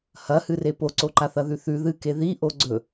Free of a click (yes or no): no